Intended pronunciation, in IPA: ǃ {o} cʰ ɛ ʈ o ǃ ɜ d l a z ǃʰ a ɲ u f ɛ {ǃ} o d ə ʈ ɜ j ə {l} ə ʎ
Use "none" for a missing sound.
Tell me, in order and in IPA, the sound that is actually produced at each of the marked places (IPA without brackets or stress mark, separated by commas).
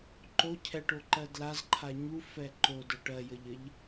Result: o, ǃ, ʎ